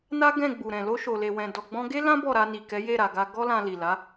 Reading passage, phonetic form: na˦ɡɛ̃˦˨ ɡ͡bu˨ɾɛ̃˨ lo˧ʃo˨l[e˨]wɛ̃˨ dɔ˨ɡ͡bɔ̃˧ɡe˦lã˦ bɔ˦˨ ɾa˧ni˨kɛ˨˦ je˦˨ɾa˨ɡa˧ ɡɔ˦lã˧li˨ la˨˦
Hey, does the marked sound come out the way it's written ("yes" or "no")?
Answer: yes